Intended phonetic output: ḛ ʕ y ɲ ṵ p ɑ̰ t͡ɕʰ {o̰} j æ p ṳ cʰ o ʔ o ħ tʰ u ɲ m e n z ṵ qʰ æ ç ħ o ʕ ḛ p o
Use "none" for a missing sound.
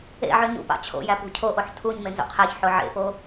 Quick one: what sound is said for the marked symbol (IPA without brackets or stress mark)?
o̰